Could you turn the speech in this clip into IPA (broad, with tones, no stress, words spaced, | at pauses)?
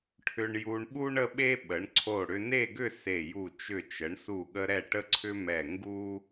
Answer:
ʈʰʏ˧ɳju˧ɳɓu˥ɳ ə˥ɓe˥ ɓə˩˧ɳǀʰo˧˩ ɽʏ˧ne˥˧ɡʏ˥˧ se˧˩ju˧˩ t͡ʃʏ˧˩t͡ʃə˩˧ɳsu˧˩ɠə˧ ɾɛ˧˩ʈə˧ǀʰʏ˧ mɛ˧˩ŋɡu˥